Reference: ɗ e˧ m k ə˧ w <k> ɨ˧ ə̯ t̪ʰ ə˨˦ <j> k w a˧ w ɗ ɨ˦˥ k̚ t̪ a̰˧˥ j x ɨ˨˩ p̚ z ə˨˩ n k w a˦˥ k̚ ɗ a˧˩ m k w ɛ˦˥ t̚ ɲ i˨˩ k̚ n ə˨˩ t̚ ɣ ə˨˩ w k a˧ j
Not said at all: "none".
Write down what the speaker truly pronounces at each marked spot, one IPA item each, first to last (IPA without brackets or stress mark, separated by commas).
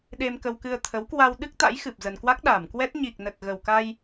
k, w